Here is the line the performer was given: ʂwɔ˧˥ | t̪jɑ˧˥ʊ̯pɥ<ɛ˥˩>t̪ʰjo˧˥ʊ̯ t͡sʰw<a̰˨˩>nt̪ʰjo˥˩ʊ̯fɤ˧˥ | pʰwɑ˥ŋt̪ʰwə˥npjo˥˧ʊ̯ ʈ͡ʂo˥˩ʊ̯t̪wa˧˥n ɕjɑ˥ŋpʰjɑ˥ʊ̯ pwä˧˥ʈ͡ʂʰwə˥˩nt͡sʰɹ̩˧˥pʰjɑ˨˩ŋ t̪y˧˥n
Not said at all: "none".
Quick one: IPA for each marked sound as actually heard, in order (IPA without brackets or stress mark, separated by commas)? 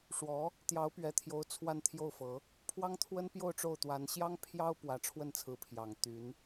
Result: ɛ˨˩, a˥˧